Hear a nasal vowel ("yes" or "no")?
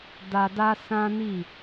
yes